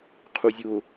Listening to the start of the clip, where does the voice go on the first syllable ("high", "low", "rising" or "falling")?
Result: low